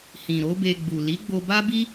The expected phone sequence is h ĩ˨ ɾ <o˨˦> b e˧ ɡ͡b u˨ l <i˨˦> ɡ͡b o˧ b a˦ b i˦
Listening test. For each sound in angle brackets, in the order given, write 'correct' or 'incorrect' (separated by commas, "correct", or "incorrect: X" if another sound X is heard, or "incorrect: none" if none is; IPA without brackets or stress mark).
correct, correct